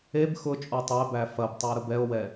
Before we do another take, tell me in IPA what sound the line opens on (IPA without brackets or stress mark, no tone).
e